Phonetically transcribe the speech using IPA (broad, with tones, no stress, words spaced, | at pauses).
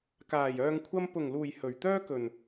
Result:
kaː˨˩j œː˨ŋkʷʰɐ˧mpʊ˨˩ŋluː˨˩j hɵ˨˩ɥt̪œː˥kɵ˨˩n